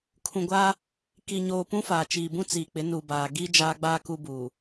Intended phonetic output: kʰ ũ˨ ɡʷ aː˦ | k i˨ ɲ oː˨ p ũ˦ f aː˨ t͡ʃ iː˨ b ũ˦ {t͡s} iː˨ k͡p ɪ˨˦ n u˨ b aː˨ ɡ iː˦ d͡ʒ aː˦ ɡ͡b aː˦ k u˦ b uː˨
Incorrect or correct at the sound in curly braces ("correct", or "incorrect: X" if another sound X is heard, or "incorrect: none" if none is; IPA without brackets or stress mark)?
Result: correct